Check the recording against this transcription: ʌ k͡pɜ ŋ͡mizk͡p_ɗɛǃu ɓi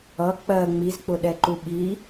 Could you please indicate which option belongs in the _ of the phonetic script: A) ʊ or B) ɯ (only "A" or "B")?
A